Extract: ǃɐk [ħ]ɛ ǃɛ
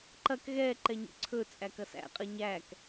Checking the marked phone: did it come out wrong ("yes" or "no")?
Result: yes